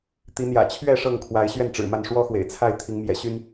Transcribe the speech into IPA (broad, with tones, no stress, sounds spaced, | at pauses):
t̪ i˨˦ n̪ j ä̰˨˩ t͡ɕʰ ɥ ɛ˥˨ ʂ ɤ˥˨ ŋ kʰ w a˨˦ ɪ̯ ɕ ɥ ɛ˥˨ n ʈ͡ʂ ɻ̩˨˩ m a˥˨ n ʂ w ɔ˦ x w ḛ˨˩ ɪ̯ t͡sʰ a˥˨ ɪ̯ t̪ʰ i˨˦ ŋ m j ɛ̰˨˩ ɕ y˦ n